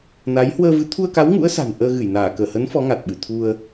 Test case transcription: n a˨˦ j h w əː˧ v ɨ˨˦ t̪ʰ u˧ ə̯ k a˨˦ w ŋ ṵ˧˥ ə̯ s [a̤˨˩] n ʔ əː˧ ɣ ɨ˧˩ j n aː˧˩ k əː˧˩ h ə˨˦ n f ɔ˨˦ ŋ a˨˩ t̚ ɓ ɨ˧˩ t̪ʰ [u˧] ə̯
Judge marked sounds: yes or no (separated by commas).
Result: yes, yes